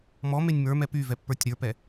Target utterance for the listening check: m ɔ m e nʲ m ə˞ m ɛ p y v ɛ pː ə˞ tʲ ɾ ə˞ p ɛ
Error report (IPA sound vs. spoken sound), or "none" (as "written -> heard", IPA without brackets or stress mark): none